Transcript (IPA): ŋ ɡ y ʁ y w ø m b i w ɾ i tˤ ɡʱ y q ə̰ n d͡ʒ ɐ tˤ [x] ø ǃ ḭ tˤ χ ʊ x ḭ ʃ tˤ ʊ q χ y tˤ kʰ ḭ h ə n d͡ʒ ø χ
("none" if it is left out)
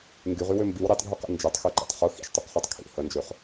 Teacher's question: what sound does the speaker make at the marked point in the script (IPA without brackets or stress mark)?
x